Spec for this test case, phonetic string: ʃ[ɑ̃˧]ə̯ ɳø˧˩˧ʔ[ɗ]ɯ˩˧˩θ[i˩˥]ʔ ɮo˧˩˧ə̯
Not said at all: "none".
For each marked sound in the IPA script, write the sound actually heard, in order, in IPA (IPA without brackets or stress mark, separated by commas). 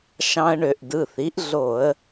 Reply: ɑ̃˧, d, i˩˥